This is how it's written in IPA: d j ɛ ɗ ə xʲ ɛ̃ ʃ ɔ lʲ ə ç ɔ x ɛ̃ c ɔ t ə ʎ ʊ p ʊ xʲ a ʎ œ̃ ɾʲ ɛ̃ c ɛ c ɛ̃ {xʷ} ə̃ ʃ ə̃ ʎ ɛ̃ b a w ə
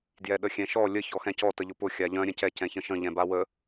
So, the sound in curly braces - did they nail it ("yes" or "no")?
no